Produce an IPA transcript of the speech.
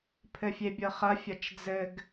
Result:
pʰ ɘ fʲ e bʲ ɤ χ ɐ fʲ ɐ t͡ʃ d͡z ɘ ɡ

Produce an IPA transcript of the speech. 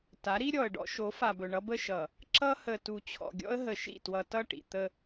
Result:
t a˨˦ ɾ i˦ ɾʲ ɔ˨ ə̯ ɖ ɔ̰˦ ʃ o˨˦ f a˨ b ɵ˨ ɳ ʌ˦ b ə˦ ʃ ʌ˨ | ǁ ʌ˦ h ə˨ t u˨ t͡ɕʰ ɔ̰˨ ɡʲ ɔ̰˦ ə̯ ɦ ə˨ ʃ ḭ˦˨ t w ʌ˨ t ʌ˦˨ ʈ ḭ˨ t̪ ə˦

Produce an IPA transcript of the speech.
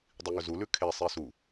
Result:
dˤ i ŋ ɵ z u l ʉ kʰ e sˤ i s u

